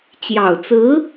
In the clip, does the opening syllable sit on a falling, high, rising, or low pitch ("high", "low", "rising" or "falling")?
low